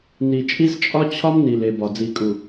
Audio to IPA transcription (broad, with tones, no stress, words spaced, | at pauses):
ni˨t͡ʃʼi˦zt͡ʃʼɒ˦ t͡ɕʰɒ˦mni˨l e˨bɒ˨ d͡zi˨kʼu˨